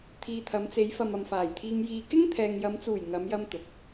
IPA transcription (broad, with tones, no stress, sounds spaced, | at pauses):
t̪ʰ iː˨ t̪ʰ ɐ˨˧ m t͡s e˨˧ j f ɐ˨ m ɐ˨ m f aː˨˩ j t̪ʰ iː˧ ŋ j iː˧ k ɪ˥ ŋ t̪ʰ ɛː˨ ŋ j ɐ˨˧ m t͡s uː˨˩ j ŋ ɐ˨˧ m j ɐ˧ m t̪ ʊ˨ k̚